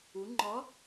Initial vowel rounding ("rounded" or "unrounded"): rounded